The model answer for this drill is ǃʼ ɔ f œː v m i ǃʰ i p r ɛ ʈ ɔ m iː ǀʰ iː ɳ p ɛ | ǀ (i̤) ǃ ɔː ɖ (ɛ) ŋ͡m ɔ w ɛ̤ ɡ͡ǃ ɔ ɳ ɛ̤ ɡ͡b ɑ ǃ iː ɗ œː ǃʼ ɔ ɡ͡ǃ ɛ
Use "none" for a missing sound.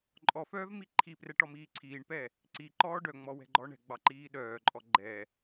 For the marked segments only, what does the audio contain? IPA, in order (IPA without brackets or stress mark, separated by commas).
i, œ